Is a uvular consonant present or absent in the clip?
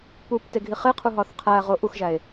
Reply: present